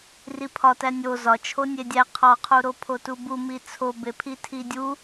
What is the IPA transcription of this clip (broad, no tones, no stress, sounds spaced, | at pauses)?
r i pʰ ɒ t æ nʲ o z ɒ t͡ʃʰ o nʲ e dʲ æ qʰ ɒ qʰ u ɾ o pʰ o t u b u m i t͡sʰ o b e pʰ i tʰ i dʲ u